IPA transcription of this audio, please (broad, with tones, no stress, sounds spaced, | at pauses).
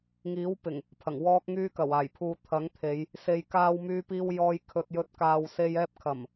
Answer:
ŋ iː˨˥ w p ɪ˨˩ ŋ | pʰ ɐ˨˩ ŋ w ɔː˧ k̚ ŋ yː˧ k ɐ˨˩ w aː˨˩ j pʰ uː˨ t̪ʰ ɐ˨˥ ŋ t̪ʰ e˨˧ j | s e˨ j k aː˧ w m yː˧ p iː˧ w j ɔː˧ j kʰ ɵ˨ t̚ j ɵ˨˥ t̚ k aː˨ w s e˧ j ɛː˧ p̚ kʰ ɐ˨˩ m